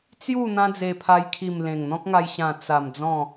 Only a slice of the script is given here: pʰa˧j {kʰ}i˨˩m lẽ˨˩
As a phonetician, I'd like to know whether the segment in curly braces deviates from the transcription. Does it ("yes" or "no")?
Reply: no